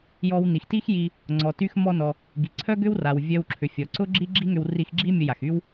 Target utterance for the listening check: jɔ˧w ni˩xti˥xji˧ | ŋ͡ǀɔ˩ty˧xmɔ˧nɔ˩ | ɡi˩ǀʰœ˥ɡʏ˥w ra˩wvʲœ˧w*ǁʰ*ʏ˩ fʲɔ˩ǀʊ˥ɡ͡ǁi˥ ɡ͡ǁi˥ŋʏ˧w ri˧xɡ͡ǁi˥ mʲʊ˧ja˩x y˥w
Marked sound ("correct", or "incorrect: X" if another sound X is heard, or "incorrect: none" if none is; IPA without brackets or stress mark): correct